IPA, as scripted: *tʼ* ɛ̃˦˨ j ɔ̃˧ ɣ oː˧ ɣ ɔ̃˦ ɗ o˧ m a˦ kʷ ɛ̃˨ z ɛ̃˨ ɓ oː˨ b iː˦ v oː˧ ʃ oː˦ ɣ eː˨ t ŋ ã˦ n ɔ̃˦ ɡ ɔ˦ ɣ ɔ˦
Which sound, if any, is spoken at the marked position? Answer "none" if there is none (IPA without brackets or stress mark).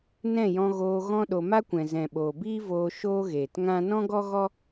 n